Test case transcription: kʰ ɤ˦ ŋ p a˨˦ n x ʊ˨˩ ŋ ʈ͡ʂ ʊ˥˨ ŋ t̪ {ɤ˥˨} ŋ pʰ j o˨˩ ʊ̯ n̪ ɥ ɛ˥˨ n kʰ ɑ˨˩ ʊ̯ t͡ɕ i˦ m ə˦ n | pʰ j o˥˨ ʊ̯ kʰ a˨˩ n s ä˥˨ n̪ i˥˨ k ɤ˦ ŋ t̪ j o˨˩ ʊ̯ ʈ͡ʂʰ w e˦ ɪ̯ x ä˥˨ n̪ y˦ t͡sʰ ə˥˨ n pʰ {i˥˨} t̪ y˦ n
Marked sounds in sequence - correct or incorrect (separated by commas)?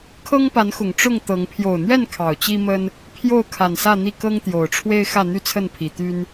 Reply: incorrect, incorrect